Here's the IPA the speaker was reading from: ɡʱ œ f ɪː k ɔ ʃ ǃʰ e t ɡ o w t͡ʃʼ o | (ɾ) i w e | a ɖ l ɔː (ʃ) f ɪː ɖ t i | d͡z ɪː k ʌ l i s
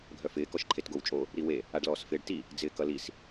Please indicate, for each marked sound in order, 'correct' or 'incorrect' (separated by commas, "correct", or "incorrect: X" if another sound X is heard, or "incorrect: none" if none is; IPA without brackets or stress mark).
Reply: correct, incorrect: s